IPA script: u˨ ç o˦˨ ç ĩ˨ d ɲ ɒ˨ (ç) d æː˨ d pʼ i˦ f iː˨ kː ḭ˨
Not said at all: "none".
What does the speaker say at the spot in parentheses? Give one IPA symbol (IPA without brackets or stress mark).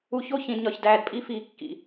ç